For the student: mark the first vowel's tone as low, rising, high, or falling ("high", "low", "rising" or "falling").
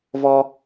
high